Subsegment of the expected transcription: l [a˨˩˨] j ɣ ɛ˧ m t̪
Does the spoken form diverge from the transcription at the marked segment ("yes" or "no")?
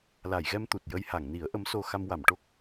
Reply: no